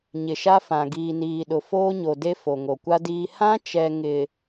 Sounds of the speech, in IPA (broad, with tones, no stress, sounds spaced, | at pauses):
ɲ ɪ˨ ʃ a˦ f ã˨ ɡ iː˨ n iː˨ ɗ ʊ˨ f oː˦ ɲ o˨ d e˦ f o˨ ŋ o˨ kʷ a˦ d iː˦ h ã˦ t͡ʃ ɛ˨ ŋ ɪ˨